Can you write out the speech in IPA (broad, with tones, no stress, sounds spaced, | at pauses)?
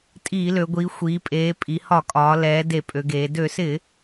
tʼ iː˧˩˧ l ø˩˧ ɡʷ iː˩˧ xʷ iː˩˧ pʼ eː˩˧ pʼ i˩˧ h ɒ˧˩˧ kʼ ɒː˩˧ l ɛː˩˧ d e˧˩˧ pʼ ø˩˧ ɡ eː˩˧ d ø˧˩˧ s ɪ˧˩˧